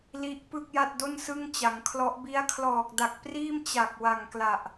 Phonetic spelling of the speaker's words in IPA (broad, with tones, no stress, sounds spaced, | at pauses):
l i˦˥ ʔ p ɯ˥˩ k̚ j a˥˩ t̚ d o˥˩ n s ɯ˥˩ ŋ t͡ɕ a˩˦ ŋ kʰ l ɔ˦˥ ʔ b i˦˥ a̯ kʰ l ɔː˨˩ k̚ d a˨˩ k̚ p r iː˥˩ m t͡ɕ a˨˩ k̚ w a˨˩ ŋ k l a˨˩ ʔ